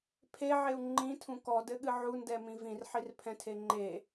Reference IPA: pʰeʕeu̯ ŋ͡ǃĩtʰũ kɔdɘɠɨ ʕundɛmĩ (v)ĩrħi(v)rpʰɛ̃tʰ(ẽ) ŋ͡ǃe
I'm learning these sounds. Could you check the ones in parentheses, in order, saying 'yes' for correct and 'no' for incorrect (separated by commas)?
yes, no, no